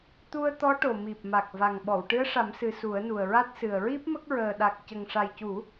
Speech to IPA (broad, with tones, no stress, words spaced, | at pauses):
t̪u˧ə̯t̪ɔ˧˥ ʈo˨˩mi˨˩p̚ma˨˩k̚ va˨˩ŋɓɔ˨˩˨w ʈɨ˧˥ə̯ʂa˨˩˦msɨ˨˩ su˨˩˦ə̯nu˨˩ə̯ɹa˦˥t̚ sɨ˨˩ə̯ɹi˦˥p̚mə˦˥k̚ ɹəː˨˩ɗa˨˩k̚ cə˨˩ŋʂa˨˩jcu˨˩˦